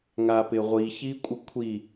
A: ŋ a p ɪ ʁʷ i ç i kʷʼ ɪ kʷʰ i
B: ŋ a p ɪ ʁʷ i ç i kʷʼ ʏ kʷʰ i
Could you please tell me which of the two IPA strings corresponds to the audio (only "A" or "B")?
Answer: A